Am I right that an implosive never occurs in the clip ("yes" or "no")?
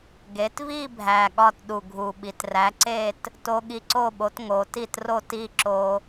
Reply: no